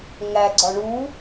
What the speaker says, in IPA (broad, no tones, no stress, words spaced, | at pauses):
ŋæɡ͡ǀɒ ɳu